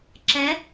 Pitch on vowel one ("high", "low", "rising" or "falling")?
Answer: rising